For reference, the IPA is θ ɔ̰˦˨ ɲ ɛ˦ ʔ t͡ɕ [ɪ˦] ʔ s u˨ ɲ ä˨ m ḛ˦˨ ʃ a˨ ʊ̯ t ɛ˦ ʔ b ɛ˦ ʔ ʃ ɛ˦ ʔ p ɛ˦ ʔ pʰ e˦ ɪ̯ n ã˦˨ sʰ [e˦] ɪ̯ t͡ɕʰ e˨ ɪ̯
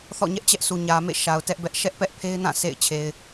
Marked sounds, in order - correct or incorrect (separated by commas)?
incorrect, incorrect